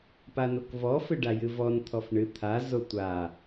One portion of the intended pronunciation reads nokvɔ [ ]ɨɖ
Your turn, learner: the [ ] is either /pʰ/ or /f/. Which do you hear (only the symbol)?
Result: f